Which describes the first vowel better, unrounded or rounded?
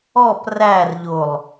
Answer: rounded